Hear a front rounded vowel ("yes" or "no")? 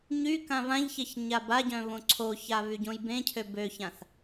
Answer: yes